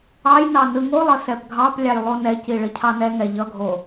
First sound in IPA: ɑ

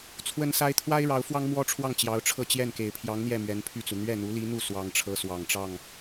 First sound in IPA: t͡sʰ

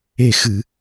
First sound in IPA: e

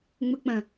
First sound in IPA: ŋ͡m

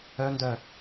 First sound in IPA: œ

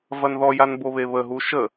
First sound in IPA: v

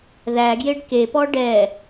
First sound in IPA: ð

